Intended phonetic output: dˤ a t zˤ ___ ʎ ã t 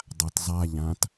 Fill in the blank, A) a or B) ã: A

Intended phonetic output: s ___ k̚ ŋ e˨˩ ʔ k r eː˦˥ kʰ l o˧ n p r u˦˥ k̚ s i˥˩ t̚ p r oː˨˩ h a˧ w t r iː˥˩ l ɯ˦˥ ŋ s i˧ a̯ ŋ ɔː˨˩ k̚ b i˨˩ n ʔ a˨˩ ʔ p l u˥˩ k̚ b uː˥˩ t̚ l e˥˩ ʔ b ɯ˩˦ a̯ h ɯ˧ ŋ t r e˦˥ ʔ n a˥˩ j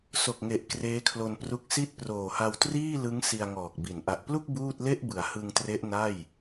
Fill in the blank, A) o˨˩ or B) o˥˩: A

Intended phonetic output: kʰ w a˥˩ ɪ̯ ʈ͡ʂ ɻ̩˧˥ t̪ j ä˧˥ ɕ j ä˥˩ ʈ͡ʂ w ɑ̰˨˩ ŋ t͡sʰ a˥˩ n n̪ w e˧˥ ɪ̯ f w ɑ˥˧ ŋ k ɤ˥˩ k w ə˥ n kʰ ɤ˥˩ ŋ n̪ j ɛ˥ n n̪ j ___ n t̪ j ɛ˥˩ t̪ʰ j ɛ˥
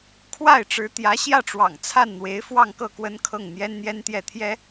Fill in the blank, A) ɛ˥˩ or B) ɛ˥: B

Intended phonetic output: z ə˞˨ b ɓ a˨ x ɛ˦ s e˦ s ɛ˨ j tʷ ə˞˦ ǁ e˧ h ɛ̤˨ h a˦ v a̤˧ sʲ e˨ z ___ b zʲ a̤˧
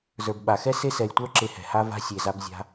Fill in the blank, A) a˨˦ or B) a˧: B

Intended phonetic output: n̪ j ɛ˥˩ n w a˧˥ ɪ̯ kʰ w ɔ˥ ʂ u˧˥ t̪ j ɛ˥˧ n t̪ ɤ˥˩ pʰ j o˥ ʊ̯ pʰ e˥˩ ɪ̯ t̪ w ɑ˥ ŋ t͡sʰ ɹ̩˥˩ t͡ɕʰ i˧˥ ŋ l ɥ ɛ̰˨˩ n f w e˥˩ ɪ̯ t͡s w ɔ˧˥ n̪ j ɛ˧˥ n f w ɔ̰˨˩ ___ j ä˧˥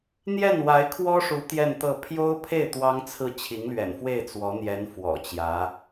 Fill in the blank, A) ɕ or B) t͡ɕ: B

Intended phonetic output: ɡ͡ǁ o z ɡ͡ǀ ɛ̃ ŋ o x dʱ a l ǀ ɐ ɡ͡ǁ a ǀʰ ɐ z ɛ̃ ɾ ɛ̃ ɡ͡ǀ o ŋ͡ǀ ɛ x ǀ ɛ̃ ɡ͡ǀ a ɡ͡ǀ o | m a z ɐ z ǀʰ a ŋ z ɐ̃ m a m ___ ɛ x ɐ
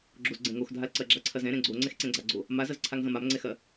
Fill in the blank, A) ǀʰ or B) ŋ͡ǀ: B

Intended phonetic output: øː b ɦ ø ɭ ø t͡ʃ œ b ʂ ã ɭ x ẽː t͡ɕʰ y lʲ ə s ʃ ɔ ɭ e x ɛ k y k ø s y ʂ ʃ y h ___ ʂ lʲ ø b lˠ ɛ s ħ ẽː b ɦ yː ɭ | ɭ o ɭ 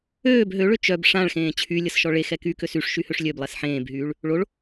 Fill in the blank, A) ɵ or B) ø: B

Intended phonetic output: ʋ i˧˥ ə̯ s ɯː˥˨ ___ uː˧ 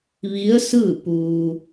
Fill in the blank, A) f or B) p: B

